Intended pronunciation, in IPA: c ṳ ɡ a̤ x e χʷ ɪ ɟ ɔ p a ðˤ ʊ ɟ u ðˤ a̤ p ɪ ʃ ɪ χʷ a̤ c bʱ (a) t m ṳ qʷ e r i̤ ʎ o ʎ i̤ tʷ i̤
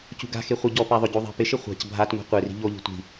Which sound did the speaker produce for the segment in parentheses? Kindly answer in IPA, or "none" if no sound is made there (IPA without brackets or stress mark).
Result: a